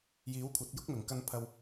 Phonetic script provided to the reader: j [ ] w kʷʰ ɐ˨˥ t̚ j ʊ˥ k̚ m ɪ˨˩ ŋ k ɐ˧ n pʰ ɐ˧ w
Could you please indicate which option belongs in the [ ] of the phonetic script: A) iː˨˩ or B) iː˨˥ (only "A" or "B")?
B